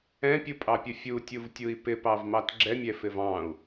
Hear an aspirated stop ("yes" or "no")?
no